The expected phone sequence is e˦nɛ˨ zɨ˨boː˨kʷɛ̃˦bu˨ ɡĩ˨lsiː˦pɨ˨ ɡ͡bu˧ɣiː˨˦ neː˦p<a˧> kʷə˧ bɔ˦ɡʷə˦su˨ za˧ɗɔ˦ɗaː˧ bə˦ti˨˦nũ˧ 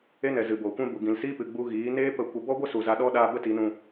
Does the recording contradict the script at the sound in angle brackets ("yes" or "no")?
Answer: yes